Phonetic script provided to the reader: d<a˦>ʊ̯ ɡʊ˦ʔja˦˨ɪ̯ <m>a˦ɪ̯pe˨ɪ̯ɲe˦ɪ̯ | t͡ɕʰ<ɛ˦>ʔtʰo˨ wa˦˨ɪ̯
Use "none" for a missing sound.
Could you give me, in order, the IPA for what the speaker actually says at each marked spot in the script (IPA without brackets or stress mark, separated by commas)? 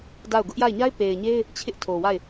a˦˨, ɲ, ɪ˦